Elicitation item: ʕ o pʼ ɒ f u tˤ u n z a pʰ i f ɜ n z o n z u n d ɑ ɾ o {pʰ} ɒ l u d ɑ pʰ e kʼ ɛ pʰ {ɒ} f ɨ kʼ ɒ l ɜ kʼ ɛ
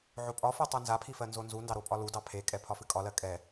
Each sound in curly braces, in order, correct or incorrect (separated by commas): incorrect, correct